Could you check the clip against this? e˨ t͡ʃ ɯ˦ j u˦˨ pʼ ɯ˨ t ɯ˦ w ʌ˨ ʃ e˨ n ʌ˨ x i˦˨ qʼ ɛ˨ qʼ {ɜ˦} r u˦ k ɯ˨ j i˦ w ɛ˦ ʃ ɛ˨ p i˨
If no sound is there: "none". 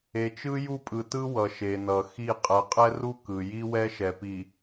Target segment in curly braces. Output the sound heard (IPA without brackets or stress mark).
ɛ˦